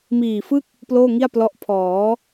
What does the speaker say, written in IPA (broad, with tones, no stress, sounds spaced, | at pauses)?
m iː˨˩ f ɯ˥˩ k̚ | p l oː˥˩ ŋ i˥˩ a̯ p l ɔ˦˥ ʔ pʰ ɔː˩˦